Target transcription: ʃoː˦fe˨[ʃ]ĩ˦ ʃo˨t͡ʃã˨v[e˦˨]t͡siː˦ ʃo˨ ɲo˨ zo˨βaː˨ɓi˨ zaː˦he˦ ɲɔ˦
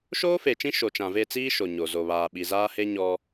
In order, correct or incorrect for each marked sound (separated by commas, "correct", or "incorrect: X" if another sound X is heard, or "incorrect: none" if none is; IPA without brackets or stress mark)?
incorrect: t͡ʃ, correct